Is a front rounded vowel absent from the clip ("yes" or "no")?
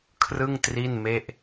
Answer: yes